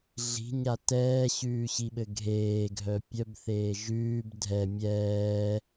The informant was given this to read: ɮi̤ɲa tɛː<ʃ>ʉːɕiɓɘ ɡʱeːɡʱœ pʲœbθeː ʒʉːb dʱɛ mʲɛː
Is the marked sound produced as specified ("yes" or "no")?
no